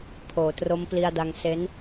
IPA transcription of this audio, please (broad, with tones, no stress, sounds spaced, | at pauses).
kʰ oː˩˦ t r o˦˥ m p l i˧ a̯ d a˧ ŋ s e˦˥ n